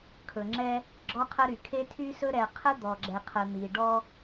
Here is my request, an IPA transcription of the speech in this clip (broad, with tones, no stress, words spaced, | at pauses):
kʰɵ˨ŋ͡ǁɛ˦ | ɡ͡ǁɔ˦qʰə˦ɾy˨ kʰe˦tʰy˦sɵ˦ ɾɛ˨ qʰə˦d̪ɔ˨ ɡ͡ǁɛ˨qʰə˨n̪i˨ ɖɔ˦